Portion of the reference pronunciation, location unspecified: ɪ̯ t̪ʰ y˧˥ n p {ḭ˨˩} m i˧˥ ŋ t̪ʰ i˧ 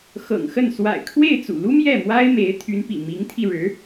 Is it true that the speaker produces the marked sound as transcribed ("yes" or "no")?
yes